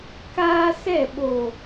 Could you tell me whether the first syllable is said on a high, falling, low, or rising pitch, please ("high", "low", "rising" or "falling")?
high